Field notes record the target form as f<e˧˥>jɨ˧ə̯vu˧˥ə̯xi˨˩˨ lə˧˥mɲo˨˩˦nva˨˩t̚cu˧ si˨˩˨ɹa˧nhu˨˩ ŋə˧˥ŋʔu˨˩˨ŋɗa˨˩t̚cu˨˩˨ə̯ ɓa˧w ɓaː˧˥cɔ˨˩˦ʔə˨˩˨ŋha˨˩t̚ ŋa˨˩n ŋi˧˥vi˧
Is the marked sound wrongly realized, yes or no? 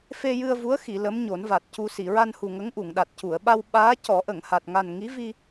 yes